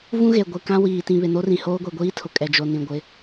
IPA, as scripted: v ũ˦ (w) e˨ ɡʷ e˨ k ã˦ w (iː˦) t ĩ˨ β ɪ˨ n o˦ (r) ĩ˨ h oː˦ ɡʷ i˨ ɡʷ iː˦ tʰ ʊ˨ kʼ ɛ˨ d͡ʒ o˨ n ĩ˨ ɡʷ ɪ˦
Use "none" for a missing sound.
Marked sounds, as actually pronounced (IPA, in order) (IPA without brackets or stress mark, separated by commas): ɣ, iː˨, r